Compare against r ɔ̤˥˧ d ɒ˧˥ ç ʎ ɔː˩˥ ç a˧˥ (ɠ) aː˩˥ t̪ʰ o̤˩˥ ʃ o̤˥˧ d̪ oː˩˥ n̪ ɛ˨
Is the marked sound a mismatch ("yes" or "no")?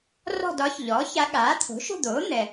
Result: no